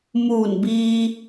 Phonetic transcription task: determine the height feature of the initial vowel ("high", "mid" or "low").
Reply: high